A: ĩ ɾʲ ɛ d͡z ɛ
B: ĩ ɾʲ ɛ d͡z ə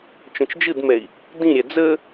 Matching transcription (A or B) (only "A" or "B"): B